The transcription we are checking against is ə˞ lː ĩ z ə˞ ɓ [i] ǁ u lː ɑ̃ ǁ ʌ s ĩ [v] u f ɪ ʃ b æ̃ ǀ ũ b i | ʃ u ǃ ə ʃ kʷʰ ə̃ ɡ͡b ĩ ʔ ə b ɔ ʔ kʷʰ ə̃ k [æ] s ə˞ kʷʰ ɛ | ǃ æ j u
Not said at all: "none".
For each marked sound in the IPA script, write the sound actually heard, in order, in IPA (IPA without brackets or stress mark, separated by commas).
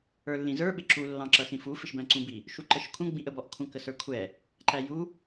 ɪ, f, ə